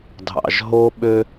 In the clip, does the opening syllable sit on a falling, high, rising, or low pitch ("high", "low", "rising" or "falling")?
low